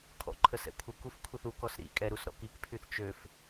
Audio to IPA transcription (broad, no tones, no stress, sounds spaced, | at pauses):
kʰ ɔ̰ ǃʰ ə s ɛ̰ kʷʰ ə k u f kʷʰ i θ u k ɔ s ɾ ḭ kʼ ɛ ɾ u s ɾ ɔ̰ k i k pʰ y θ t͡ʃ ø f